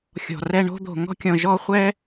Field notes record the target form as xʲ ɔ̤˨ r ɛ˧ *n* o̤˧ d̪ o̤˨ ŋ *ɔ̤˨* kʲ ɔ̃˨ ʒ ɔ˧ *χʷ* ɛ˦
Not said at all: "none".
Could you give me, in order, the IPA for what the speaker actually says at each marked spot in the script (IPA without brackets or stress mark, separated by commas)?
ɳ, ɔ̤˧, χʷ